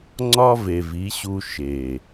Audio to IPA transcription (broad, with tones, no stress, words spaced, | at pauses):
ŋ͡ǀɒ˦ ve˨vi˨˦ɕu˧ ʃe˨